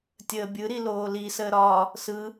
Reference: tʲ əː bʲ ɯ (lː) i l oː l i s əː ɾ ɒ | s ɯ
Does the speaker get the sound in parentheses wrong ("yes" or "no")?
yes